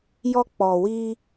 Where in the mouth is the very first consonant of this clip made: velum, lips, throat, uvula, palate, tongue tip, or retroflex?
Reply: palate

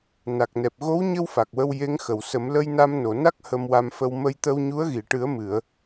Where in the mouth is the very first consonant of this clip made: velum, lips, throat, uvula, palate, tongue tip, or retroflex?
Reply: tongue tip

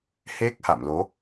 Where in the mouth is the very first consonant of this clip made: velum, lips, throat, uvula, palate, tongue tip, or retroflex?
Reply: throat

